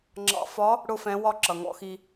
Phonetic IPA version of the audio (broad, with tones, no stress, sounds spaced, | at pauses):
ŋ͡ǁ ɑ̰˧ f ɒ˧˥ | ɽ ʊ˥ f ɛ̃˧˥ w ɒ˥ ǁ ʌ˩ ŋ ɔ̰˧ x i˧